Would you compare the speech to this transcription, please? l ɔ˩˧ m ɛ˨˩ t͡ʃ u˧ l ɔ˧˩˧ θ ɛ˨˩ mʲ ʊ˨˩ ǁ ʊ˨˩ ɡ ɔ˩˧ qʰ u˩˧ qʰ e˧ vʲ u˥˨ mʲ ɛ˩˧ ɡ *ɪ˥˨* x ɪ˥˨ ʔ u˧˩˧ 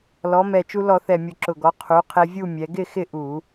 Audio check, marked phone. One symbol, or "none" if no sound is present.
ɪ˥˨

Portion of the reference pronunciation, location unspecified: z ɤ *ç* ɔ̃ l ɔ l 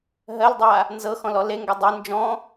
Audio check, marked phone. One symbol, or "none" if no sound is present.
x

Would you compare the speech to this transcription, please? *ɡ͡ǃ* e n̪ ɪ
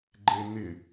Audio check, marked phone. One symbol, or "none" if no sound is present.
ɡ͡ǃ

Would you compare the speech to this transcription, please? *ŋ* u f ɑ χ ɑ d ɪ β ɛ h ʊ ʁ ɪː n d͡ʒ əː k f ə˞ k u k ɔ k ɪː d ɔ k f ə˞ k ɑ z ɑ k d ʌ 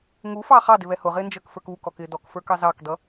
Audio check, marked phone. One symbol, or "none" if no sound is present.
ŋ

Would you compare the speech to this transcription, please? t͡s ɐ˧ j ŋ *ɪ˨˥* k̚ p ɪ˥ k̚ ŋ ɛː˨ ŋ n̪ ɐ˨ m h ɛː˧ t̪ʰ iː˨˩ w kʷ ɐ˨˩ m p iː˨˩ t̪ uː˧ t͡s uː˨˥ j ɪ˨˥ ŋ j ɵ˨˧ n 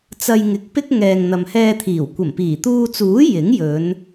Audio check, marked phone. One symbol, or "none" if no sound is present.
ɪ˨˥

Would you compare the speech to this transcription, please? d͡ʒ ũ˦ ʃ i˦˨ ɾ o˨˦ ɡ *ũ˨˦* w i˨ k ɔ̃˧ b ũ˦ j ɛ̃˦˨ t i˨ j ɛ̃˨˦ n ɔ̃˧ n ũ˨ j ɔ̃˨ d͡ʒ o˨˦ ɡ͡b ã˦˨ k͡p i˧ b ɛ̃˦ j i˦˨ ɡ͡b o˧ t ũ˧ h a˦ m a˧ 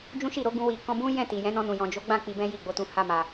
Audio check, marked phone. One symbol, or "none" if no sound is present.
ũ˧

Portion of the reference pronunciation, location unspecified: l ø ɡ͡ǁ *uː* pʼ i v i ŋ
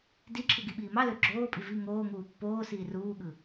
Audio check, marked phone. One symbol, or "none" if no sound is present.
oː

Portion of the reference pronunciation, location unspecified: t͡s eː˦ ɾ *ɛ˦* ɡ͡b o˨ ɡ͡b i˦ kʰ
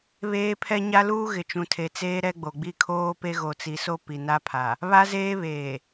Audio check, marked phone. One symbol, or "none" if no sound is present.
ɛ˦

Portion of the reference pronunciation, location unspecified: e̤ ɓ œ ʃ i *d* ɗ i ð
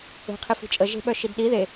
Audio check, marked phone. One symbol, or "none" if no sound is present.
d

